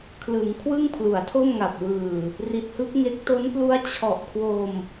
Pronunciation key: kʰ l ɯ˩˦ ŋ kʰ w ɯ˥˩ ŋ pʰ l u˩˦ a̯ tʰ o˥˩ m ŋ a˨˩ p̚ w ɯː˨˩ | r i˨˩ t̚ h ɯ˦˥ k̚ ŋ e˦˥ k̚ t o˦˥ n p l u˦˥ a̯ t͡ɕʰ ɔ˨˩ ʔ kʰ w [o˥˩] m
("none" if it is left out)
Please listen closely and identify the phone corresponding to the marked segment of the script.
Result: o˧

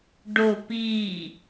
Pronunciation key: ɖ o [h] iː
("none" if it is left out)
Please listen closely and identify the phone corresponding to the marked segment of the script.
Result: p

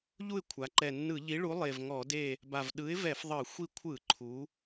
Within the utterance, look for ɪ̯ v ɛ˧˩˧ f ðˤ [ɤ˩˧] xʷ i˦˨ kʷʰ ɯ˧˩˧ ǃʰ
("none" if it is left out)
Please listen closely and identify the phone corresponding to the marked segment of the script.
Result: ɤ˧˩˧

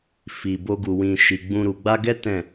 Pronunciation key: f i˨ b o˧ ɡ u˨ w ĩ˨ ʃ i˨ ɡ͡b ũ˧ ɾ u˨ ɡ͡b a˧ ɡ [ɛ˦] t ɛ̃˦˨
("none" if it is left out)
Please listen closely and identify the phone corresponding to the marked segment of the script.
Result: ɛ˦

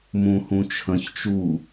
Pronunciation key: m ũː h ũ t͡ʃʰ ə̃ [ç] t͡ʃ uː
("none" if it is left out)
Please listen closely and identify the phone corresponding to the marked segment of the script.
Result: ç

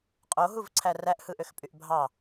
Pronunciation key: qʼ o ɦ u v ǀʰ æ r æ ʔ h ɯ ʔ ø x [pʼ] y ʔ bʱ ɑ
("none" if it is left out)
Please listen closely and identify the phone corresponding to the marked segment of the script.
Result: pʼ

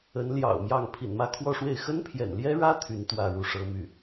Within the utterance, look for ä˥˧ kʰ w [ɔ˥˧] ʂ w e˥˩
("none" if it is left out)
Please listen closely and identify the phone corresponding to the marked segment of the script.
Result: ɔ˥˧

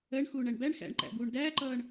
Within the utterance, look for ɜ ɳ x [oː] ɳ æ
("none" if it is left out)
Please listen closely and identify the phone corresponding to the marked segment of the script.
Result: uː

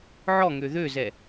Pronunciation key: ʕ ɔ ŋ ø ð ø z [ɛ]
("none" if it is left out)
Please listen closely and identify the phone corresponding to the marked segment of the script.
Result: ɛ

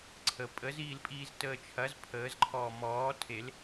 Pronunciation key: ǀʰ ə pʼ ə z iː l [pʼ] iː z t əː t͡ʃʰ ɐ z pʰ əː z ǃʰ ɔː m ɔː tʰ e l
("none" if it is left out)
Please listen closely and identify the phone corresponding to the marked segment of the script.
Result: pʼ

